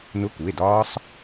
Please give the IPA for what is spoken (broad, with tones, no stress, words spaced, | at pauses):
nʊ˧˥˧ku˩˧˩e̯dɒː˦˥sˤ